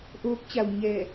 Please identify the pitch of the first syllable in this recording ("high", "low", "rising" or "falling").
rising